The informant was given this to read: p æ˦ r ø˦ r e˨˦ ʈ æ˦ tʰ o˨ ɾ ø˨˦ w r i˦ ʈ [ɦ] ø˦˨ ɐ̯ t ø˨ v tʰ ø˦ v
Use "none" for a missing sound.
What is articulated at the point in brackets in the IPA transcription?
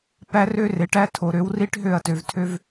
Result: ɦ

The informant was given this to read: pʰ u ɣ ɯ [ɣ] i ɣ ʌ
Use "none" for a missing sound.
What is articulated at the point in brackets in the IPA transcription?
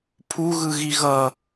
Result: ɣ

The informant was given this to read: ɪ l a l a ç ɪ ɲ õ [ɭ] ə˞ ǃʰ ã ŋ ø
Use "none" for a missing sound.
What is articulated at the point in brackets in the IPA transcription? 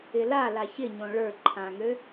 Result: ɭ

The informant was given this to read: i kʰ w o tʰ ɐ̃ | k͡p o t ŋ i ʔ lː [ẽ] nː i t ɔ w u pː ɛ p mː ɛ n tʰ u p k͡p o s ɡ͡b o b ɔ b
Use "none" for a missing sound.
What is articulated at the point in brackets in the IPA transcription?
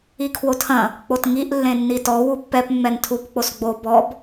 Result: ẽ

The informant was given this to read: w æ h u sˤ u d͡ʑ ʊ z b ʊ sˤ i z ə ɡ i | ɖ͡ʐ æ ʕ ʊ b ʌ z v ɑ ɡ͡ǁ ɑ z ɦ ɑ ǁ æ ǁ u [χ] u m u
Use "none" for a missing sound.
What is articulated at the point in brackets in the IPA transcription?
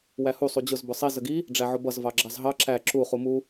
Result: χ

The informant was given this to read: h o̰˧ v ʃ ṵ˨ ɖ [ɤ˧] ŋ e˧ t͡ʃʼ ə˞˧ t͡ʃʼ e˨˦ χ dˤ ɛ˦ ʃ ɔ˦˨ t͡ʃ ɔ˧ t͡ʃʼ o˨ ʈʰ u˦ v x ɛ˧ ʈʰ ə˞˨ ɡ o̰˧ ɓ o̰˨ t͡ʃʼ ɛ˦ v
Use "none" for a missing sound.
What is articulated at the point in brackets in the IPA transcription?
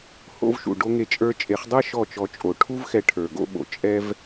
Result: o˧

